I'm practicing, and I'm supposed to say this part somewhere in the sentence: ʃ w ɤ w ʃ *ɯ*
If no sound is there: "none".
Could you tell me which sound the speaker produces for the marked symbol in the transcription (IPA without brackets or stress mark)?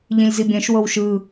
ɯ